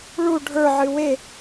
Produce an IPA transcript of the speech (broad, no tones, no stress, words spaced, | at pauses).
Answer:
ɭu ɖʱə˞ʕɨ we